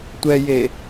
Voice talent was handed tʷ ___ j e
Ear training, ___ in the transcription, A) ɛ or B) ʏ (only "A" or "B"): A